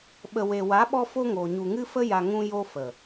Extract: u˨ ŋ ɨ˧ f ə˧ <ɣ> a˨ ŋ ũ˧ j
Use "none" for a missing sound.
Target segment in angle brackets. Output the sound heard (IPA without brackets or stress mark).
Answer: j